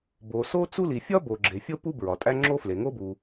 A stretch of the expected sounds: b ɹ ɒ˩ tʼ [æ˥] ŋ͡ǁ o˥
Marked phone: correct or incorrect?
correct